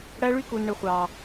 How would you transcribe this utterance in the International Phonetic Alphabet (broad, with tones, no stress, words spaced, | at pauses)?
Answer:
ɽæ˦ɭy˦ku˨n ɳɯ˨χʷɑː˨